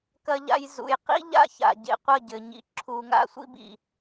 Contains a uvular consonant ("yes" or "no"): yes